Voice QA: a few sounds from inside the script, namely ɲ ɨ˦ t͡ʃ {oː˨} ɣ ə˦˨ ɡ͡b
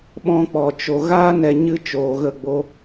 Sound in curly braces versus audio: correct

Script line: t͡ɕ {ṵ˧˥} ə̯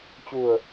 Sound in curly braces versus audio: incorrect: u˨˩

